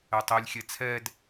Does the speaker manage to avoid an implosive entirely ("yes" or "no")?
yes